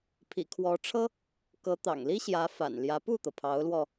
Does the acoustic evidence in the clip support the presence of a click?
no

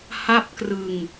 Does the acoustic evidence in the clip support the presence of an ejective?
no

